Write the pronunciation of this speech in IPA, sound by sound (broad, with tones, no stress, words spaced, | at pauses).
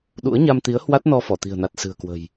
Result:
ɗṵ˧˥ə̯ɲa˧mt̪i˨˦ə̯ hwa˦˥t̚nɔ˧ fɔ˧˩t̪i̤˨˩ə̯na˨˩t̚ sɨ̤˨˩ə̯kwə̤˨˩j